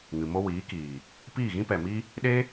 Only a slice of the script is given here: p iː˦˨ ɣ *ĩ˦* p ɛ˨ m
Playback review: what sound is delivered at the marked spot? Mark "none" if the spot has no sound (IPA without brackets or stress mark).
ĩ˦